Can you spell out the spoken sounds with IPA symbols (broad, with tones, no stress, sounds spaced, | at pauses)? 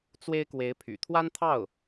t͡s w e˥ ɪ̯ k w e˧˥ ɪ̯ pʰ y̰˨˩ t̪ʰ w a˥ n t̪ʰ ɑ˥˩ ʊ̯